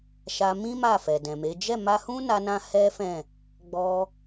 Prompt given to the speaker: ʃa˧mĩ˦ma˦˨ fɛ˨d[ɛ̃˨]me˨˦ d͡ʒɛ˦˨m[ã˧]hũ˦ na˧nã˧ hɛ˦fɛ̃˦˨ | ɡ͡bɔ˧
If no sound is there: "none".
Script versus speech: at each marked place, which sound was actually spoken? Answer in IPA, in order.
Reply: ɛ̃˨, a˧

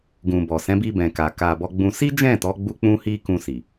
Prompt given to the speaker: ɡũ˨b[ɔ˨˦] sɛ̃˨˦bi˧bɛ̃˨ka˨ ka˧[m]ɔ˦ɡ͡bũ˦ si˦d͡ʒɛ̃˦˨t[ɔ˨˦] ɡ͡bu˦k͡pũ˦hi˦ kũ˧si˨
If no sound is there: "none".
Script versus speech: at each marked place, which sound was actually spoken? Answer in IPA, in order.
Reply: ɔ˨, b, ɔ˨˦

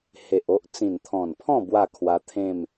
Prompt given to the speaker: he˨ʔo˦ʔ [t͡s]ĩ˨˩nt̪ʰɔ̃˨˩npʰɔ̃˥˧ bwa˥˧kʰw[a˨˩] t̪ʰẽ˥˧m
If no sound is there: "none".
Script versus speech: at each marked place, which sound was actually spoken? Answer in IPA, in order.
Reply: t͡s, a˧

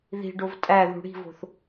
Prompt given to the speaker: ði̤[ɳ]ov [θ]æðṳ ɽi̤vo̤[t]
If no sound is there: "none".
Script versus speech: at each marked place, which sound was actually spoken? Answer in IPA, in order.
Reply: ɖ, tʼ, θ

